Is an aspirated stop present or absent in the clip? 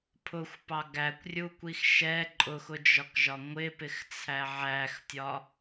present